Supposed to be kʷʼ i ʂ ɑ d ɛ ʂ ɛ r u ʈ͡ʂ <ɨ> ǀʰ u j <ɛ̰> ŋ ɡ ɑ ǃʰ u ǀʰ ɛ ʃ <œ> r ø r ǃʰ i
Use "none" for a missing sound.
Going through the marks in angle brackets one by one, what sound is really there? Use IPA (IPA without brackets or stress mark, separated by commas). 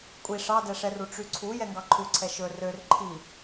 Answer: y, ɛ, ɵ